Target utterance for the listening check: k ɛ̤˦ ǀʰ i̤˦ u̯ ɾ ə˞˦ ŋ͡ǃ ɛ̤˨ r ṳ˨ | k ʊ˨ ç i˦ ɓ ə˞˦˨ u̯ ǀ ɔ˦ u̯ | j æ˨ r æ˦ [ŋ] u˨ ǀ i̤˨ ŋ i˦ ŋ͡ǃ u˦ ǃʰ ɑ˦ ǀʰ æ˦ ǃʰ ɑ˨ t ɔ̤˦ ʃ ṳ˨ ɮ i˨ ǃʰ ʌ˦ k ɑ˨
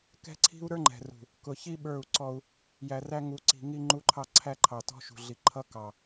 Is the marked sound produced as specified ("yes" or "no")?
yes